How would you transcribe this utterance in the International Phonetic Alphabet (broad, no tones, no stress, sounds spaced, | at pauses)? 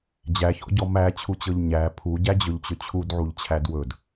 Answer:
d͡ʑ æ ç ɔ̰ ɟ ɔ m æ t͡ɕʰ u t͡ɕ ɤ ʎ ɲ æ pʰ u ɟ æ d͡ʑ ɵ ʎ t͡ɕ ɵ t͡ɕʰ u d ʕ u ʎ t͡ɕʰ æ d w ɵ d